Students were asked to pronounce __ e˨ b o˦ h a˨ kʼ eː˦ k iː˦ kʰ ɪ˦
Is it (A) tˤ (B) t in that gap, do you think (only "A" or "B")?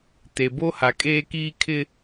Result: B